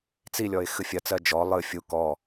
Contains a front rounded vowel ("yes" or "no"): no